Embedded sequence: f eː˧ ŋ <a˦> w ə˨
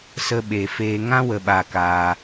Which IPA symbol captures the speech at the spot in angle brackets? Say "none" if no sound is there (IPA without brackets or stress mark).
ã˦